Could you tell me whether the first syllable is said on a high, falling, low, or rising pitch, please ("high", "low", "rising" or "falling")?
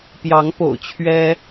rising